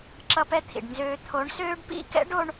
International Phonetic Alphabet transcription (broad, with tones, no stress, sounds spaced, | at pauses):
ǁ ʌ˦ p ɛ˦ t̪ʰ ḭ˨ ɖ n z øː˦ t̪ʰ o˨˦ ɳ s øː˦ ɖ p ḭ˦˨ k ɛ̰˦ ɖ o˦ ɳ